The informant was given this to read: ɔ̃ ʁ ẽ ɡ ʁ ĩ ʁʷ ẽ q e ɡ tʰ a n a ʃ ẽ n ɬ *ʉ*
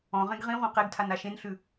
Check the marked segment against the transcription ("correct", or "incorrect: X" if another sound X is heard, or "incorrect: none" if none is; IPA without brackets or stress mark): correct